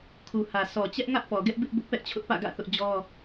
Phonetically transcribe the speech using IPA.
kʰ u˨ h ä˨ sʰ ɔ˨ t͡ɕ ɛ˦ ʔ ŋ ä˦ ʔ p ɔ˨ ɡ ɛ˦ ʔ b ɪ˦ ʔ b ʊ˦ ʔ p ɛ˦ ʔ t͡ɕʰ ʊ˦ ʔ p ä̰˦˨ ɡ ä̰˦˨ θ ʊ˦ ʔ d͡ʑ ɔ˦

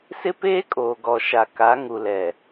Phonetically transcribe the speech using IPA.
s ɪ˦ p eː˦ kʼ oː˨ ɡ ɔ˨ ʃ a˨ k a˨˦ ŋ u˨ l ɛ˨

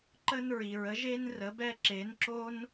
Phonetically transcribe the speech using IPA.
ǃ ə˥ n ɹ i˧ ɹ ə˧˥ ʒ e˥ n r ə˧˥ b ɛ˥ ǁ e˧˥ n ǁ o˥ n

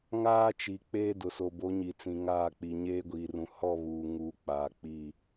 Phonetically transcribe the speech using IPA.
ŋ aː˦ t͡ʃ i˨ k͡p eː˦ d ʊ˨ s o˨ b o˨˦ ɲ i˨ t͡s ĩ˨ ŋ aː˦˨ k͡p i˨ ɲ eː˦ ɡʷ iː˨ r ũ˨ h ɔ˦˨ β uː˨ ŋ uː˨ k͡p aː˨ k͡p i˦˨

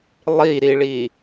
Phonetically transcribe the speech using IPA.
lˠ i ɾ i ɭ i

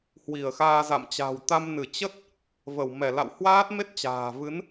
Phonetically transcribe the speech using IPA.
h w i˧˩ ə̯ x aː˧ z a̰˧˨ m t͡ɕ a̤˨˩ w t̪ a˧ m n ɨ˧˩ t͡ɕ ə˦˥ t̚ | v ə˧˩ w m ɛ˧˩ l a̰˧˨ w h w aː˦˥ t̚ m e˦˥ t̚ t͡ɕ a̤ː˨˩ v ɨ˨˦ n

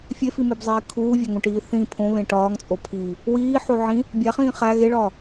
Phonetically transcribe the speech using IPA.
fʲ e f i m e b zˤ iː kʰ uː vʲ æ ŋ ũ ʈ iː θ ĩ pʰ õ β ẽ ʈ ɒː ŋ t͡sʼ o pʰ iː | w iː ħ o ʕ ĩ | bʲ æ χ ĩː χ æ ɣ e ɭ ɒː

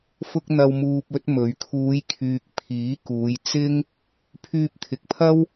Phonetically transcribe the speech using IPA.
f ʊ˧ k̚ n̪ ɐ˨ w m uː˨ p̚ ɵ˧ t̚ m ɵ˨˧ ɥ kʰ uː˨˧ j kʰ yː˨ k̚ pʰ iː˨˥ k uː˨˧ j t͡s ɪ˥ ŋ | pʰ yː˧ p̚ t̪ʰ ɪ˨ k̚ pʰ ɐ˥ w

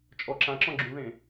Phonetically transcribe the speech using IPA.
t͡ʃʼ ɔ ǁ ã ǁ ɔ̃ ɡ͡ǁ ũ ð ẽ

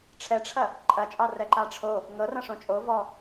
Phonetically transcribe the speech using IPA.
ʈ͡ʂʰ ɛ ʈ͡ʂʰ ɐ | ǃʼ ɐ t͡ʃʼ ɑ r ɛ ǃ a ʈ͡ʂʰ o | ŋ ɤ r ɐ̃ ʂ õ t͡ʃʼ o v ɔ

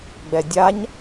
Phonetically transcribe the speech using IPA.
ɡ͡b ɛ dʲ a ɲ

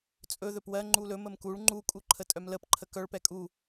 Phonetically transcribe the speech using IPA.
t͡sʼ ɵ ð ɵ p w ɜ ŋ͡ǃ u l ɵ m ə m k u ɭ ŋ͡ǃ u kʼ u ǃʰ ə tʼ œ m l ə p ǃʰ ə k œ ɭ p ɛ kʼ u

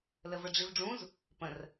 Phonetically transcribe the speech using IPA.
l ə v ə ɖ͡ʐ i v ɖ͡ʐ ũ z | p ə̃ r

